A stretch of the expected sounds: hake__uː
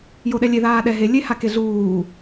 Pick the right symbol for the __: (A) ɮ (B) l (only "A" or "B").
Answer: A